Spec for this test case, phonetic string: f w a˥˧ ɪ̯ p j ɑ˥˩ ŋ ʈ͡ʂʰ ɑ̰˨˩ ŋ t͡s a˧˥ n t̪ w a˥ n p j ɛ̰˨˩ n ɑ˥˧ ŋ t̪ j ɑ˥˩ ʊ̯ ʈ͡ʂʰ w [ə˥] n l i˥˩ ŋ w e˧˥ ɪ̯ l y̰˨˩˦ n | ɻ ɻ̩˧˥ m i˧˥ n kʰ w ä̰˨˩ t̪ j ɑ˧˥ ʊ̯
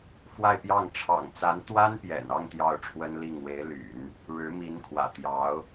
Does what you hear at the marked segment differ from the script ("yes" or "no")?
no